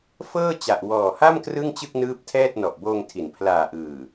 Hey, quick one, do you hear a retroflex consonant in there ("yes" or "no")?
no